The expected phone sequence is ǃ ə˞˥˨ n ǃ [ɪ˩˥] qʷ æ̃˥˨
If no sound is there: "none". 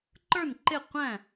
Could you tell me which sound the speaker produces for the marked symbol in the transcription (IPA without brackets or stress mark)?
ɪ˥˨